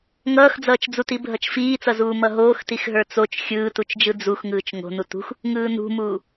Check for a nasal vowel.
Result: absent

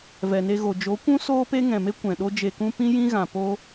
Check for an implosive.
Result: present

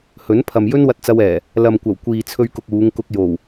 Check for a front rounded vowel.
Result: absent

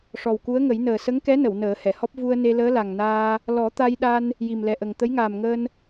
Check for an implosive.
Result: present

